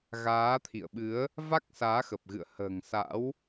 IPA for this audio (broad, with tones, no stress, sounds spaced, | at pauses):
ɣ aː˨˦ t̪ʰ ḭ˧˨ ə̯ ɓ ɨ˨˦ ə̯ | v a˦˥ k̚ s aː˨˦ x ə˨˩ p̚ ɣ ɨ̰˧˨ ə̯ h ə̤ː˨˩ ŋ s a̰˧˥ w